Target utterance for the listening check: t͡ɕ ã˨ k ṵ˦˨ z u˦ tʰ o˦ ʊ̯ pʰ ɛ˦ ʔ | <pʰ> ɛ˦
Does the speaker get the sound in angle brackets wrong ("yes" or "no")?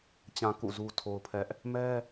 yes